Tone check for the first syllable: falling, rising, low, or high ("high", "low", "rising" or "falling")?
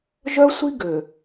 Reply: high